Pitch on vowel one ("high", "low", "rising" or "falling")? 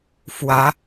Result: rising